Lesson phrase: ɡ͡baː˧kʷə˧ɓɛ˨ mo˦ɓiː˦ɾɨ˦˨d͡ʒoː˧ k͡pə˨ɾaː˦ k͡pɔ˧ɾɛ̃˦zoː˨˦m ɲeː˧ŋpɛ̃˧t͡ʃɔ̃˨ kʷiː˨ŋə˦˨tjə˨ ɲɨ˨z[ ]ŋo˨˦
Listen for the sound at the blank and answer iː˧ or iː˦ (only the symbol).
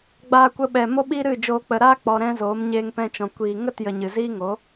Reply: iː˦